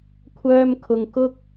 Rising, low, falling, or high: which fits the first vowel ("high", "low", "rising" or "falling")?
high